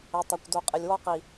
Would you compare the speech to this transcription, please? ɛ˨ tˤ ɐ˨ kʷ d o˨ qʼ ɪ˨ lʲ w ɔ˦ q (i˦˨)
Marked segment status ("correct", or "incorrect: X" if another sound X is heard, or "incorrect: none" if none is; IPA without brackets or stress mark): incorrect: i˨